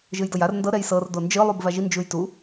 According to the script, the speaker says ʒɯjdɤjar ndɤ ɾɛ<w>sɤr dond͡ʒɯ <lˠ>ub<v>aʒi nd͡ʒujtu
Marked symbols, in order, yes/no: no, yes, yes

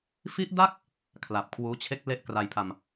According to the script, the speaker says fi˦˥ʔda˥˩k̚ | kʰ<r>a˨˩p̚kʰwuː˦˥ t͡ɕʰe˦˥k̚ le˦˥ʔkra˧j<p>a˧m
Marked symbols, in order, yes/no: no, no

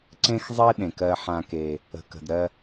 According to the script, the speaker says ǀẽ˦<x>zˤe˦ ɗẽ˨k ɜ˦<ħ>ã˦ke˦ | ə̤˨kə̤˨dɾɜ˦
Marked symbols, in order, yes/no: yes, yes

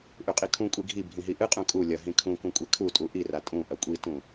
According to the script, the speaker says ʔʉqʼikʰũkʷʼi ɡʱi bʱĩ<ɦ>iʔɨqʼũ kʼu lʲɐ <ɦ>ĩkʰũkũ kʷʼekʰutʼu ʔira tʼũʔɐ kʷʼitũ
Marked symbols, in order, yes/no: yes, yes

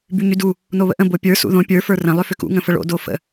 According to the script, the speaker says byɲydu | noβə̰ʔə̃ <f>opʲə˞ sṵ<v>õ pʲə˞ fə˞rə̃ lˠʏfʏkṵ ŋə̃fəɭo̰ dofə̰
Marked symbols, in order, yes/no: no, no

